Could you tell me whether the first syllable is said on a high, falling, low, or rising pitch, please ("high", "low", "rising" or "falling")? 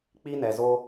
high